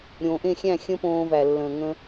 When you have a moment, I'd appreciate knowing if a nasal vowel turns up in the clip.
yes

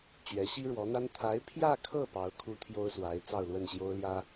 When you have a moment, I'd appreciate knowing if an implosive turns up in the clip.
no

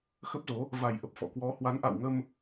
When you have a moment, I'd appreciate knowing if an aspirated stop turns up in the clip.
no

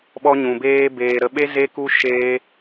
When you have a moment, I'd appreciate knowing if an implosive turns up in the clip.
yes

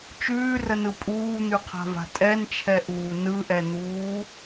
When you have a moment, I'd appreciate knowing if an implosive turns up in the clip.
no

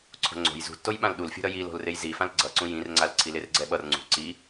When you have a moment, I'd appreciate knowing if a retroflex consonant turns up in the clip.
no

